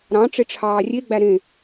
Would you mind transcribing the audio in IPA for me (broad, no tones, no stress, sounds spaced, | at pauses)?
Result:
ɾ ɑ̃ ʈ͡ʂ e ʈ͡ʂʰ ɑː rʲ e ɡ͡b æ ɾ ẽ